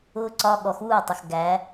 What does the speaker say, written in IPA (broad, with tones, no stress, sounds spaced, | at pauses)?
ʊː˦˥ ǀ ɒ˧˥˧ ɠ ɔ˩˧ x uː˥˩ tˤ ə˩ x ɡ æ˩˧